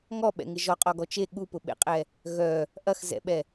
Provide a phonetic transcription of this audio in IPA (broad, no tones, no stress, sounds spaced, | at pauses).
ŋ ɔ ɓ ɛ̰ ŋ ɪ ʒ ɔ qʼ ɔ ɡ ɔ t͡ʃ e ɠ u p ʊ ɓ ḛ qʼ ɛ | ɣ œ | ʔ ɐ x z ɛ̰ ɓ ɛ